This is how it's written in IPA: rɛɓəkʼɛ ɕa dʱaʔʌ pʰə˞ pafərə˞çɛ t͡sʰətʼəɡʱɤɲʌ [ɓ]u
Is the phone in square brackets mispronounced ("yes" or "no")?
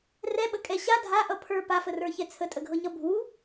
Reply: yes